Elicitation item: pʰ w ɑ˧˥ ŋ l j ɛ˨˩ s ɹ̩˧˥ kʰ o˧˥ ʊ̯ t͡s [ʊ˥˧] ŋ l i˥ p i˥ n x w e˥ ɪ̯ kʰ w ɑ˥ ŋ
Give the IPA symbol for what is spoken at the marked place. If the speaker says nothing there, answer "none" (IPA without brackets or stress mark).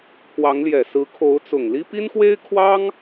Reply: ʊ˨˩